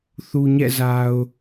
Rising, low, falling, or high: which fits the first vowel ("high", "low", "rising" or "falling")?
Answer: low